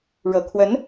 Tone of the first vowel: low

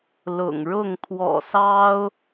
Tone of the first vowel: low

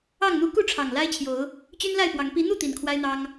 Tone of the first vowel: falling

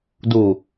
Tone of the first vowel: low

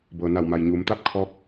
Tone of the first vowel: low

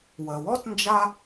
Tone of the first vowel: low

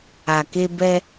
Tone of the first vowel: low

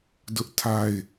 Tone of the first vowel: high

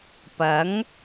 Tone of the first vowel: rising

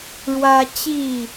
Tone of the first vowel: high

